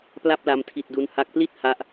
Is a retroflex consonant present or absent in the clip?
absent